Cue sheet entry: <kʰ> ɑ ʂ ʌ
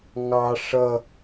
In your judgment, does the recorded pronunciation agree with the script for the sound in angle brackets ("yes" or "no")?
no